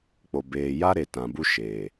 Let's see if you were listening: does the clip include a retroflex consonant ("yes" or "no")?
no